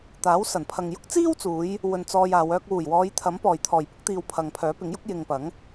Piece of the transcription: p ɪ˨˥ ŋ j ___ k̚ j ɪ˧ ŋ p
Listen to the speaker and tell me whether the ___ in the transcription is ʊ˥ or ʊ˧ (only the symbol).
ʊ˥